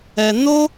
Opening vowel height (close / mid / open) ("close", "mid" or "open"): mid